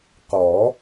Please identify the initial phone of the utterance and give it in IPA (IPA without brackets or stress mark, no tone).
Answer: q